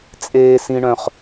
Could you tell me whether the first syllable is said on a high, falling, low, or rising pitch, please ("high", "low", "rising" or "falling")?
high